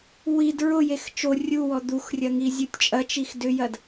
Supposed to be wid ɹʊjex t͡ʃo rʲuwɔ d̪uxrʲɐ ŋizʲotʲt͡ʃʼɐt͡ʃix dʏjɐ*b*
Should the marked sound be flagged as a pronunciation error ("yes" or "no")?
yes